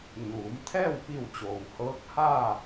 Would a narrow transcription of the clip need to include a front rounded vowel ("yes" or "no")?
no